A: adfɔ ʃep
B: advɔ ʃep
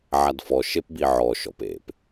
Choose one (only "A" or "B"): A